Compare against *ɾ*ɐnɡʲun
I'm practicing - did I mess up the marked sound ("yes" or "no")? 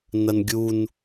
yes